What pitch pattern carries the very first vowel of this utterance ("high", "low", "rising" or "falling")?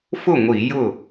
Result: falling